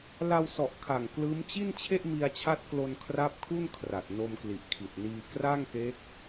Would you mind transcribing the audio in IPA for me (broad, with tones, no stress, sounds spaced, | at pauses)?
l a˧ w s ɔ˨˩ ʔ kʰ a˨˩ ŋ k l ɯː˦˥ m t͡ɕ i˥˩ n t͡ɕʰ e˥˩ ʔ m i˧ a̯ t͡ɕʰ a˦˥ t̚ k l o˧ n kʰ r a˦˥ p̚ kʰ u˥˩ n kʰ r a˨˩ t̚ n o˧ m k l i˨˩ ʔ kʰ i˨˩ t̚ n iː˧ k r a˥˩ ŋ k e˦˥ k̚